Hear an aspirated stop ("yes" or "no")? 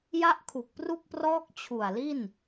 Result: yes